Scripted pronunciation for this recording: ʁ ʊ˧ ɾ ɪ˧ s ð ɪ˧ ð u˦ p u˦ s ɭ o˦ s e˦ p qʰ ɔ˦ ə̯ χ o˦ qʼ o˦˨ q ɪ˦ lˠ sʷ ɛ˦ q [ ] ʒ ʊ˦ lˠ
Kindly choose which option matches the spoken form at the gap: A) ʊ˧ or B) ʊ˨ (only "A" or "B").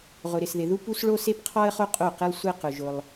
A